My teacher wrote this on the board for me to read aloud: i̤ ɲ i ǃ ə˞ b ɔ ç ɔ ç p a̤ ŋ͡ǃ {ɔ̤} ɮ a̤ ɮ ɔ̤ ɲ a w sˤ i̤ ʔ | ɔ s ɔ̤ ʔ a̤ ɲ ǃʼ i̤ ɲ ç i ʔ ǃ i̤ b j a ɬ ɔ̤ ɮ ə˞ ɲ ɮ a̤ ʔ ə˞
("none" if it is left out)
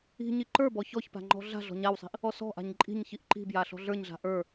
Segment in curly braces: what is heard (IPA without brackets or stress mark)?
ɔ̤